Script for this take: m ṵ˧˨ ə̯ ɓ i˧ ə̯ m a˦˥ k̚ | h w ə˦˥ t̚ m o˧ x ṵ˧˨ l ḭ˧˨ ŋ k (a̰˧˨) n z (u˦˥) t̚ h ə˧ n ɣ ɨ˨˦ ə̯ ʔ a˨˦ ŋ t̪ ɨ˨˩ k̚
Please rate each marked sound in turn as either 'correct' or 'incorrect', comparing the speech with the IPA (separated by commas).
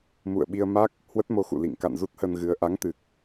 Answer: correct, correct